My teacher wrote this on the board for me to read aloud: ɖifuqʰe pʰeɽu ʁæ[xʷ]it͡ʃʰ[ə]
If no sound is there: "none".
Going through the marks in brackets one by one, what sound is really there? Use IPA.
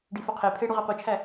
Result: qʷ, æ

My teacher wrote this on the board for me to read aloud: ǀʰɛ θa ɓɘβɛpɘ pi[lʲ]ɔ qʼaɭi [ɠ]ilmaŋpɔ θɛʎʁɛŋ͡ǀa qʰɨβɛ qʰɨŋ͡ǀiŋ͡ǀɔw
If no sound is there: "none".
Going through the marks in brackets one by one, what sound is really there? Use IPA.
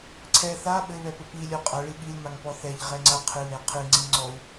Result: lʲ, ɠ

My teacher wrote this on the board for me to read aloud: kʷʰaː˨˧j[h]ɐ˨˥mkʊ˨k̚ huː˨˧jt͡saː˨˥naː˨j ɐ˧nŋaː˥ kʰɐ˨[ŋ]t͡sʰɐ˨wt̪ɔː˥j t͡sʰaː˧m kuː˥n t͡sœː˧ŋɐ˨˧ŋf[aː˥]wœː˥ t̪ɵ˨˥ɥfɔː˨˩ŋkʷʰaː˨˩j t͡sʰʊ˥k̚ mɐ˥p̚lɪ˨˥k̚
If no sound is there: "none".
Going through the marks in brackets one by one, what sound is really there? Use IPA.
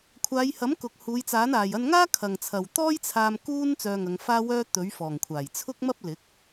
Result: h, ŋ, aː˥

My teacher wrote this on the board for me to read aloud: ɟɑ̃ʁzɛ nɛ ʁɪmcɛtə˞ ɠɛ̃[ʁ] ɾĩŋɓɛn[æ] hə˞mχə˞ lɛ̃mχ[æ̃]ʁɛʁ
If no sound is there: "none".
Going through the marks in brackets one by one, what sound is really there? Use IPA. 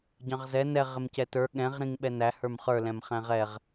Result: ʁ, æ, æ̃

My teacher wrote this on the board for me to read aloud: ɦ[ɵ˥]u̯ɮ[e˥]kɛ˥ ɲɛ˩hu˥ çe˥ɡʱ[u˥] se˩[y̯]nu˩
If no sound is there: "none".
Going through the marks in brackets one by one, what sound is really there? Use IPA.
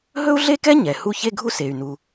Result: ɵ˥, e˥, u˥, y̯

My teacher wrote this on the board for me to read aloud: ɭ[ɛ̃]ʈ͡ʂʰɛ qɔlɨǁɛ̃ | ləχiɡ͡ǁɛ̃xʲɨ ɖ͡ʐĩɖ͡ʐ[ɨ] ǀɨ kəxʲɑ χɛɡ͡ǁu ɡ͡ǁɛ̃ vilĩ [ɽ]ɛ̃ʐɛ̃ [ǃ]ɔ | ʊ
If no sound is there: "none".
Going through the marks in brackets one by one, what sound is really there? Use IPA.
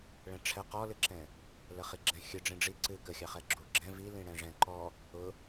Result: ɛ̃, i, ɽ, ǃ

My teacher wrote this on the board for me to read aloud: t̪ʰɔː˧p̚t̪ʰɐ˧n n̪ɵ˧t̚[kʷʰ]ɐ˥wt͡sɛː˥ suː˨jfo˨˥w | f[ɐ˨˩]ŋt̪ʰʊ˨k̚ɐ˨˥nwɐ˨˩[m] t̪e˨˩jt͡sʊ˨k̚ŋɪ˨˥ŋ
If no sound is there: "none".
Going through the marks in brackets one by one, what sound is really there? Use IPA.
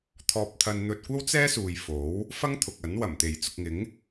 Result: kʷ, ɐ˥, m

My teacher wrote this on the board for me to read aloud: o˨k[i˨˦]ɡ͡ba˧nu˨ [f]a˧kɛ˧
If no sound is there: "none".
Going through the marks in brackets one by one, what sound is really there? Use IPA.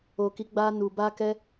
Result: i˨˦, b

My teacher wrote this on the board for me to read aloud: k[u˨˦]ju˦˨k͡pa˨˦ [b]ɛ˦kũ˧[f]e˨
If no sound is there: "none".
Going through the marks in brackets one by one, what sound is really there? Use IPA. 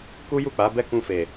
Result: u˦, b, f

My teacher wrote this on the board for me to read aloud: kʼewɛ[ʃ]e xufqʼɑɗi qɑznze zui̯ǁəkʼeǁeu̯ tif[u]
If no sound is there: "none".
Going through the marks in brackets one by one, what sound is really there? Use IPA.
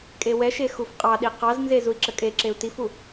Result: ʃ, u

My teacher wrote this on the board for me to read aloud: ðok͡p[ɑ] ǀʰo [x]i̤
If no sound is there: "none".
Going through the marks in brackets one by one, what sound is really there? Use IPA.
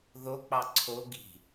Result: ɑ, ɡ

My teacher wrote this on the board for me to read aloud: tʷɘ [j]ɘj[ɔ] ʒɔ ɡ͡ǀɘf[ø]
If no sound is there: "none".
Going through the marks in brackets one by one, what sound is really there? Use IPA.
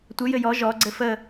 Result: j, ɔ, ə

